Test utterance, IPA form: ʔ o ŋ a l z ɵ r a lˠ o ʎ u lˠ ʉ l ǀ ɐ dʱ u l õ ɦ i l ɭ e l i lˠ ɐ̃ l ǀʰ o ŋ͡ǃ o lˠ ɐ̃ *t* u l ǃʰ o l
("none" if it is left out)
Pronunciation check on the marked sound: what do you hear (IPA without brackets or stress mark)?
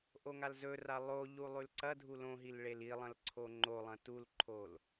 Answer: t